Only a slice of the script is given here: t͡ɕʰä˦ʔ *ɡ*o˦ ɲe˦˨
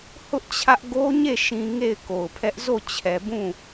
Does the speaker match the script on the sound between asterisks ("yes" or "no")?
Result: yes